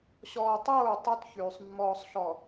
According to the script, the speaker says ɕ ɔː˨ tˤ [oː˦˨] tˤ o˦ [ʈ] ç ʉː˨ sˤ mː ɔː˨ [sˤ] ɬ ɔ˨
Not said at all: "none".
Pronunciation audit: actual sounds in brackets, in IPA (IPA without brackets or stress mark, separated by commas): oː˦˨, t, sˤ